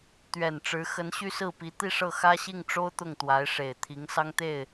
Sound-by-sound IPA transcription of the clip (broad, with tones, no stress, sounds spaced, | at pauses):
t̪ ɥ ɛ˨˩ n ʈ͡ʂ ɻ̩˧˥ x ə˧˥ n ɕ y˥ s ɹ̩˥˩ p i˧˥ t̪ i˥˧ ʂ ɤ˥˩ x ä˥ ɕ i˥˩ ŋ ʈ͡ʂ o˥ ʊ̯ t̪ ʊ˥˩ ŋ t̪ w a˧˥ ɪ̯ ʂ e˨˩ ɪ̯ t̪ʰ i˧˥ ŋ s ɑ˥ ŋ t̪ e˥˩ ɪ̯